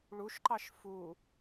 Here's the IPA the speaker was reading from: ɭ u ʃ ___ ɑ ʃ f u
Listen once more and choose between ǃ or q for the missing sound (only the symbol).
ǃ